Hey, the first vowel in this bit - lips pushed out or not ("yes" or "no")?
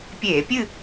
no